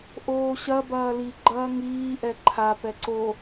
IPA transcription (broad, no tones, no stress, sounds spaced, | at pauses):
ʔ oː ɕ ɐ b ɐː l i ɡ͡ǃ ɐː ŋ iː ʔ ɛ ǃʰ a p ɛ ǀ o